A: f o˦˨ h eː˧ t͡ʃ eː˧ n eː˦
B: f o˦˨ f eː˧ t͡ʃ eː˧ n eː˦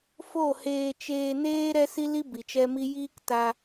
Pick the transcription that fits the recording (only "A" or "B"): A